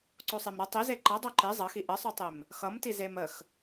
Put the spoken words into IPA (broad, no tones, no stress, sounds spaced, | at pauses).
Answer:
ǀ o sˤ e m ɾ ʌ tˤ i z e ǃ ʌ dˤ o ǃ e zˤ ʌ x i ʔ ə sˤ o tˤ e m | x ʌ m t i z e m ə x